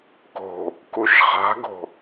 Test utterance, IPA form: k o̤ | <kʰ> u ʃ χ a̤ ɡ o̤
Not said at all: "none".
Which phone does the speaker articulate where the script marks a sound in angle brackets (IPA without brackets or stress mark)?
k